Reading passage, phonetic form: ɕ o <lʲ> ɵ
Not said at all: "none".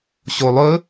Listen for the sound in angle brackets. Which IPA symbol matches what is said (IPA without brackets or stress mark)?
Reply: lˠ